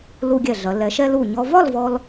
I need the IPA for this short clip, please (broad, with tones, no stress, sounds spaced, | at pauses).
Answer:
l u˧ ɡʲ ɛ˧˩ ɮ ɐ˩˧ l ɛ˩˧ ʃ ɛ˧ l u˧˩ ɲ ɔ˧ v ɒ˥˧ l v ɔ˧ l